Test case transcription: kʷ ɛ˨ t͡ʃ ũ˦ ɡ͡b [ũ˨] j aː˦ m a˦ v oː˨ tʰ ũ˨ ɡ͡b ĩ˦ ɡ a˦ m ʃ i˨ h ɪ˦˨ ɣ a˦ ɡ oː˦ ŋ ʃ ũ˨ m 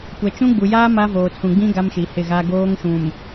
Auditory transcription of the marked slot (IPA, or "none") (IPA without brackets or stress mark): u˨